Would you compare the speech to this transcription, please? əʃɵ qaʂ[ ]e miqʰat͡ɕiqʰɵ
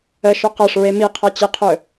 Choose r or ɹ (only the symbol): ɹ